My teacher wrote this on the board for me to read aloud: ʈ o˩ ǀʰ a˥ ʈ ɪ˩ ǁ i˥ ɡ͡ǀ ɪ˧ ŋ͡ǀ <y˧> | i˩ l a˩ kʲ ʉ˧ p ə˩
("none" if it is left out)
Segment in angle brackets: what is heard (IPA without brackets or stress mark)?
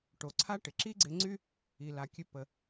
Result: y˥